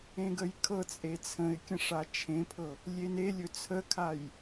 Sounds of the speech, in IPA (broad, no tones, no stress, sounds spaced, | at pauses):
ẽ ɡ ə j kʰ ɤ t͡sʼ e t͡sʰ ə̃ ɪ̯ kʲ ə̃ ʂ a t͡ʃʰ ẽ pʰ ɤ | lʲ e n e lʲ ɵ t͡sʰ ə kʰ a j